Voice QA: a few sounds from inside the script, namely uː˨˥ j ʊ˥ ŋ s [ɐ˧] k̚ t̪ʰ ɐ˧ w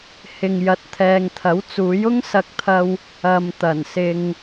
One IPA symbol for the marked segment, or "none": ɐ˧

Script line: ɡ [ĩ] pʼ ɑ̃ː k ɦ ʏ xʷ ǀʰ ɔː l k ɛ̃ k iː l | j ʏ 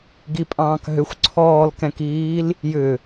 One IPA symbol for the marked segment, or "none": i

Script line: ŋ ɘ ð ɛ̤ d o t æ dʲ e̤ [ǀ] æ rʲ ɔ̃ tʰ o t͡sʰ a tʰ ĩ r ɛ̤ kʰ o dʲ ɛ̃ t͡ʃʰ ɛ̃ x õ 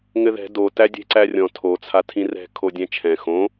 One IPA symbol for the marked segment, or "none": ǀ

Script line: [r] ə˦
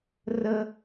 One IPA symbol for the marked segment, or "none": r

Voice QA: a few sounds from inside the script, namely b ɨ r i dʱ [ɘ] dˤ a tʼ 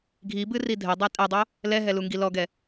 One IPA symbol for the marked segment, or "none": ɘ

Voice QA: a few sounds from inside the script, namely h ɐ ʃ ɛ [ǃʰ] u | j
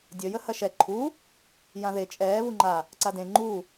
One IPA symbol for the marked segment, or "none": ǃʰ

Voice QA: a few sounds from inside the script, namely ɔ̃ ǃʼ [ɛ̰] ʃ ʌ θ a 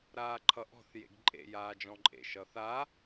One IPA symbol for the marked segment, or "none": ḛ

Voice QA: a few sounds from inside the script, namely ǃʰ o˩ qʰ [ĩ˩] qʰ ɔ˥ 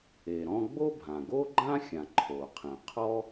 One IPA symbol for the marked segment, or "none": ĩ˩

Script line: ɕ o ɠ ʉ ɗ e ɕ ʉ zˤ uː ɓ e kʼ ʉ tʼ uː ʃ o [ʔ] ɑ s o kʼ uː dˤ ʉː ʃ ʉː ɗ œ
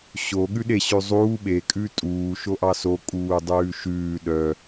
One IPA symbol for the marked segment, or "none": ʔ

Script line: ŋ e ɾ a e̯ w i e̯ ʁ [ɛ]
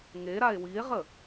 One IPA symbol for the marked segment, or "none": ə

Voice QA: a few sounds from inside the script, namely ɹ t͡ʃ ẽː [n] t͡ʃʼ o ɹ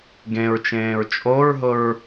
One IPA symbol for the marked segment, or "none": ɹ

